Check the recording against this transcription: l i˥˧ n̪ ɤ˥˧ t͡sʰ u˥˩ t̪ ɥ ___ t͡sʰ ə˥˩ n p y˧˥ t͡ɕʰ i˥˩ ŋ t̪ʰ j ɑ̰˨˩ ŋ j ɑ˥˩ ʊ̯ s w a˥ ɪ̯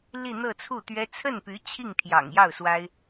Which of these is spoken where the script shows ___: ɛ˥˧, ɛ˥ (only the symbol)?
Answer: ɛ˥